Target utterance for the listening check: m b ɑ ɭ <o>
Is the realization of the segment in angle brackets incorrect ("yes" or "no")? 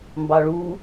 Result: yes